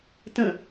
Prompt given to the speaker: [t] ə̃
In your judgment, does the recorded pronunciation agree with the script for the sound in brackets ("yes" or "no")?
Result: yes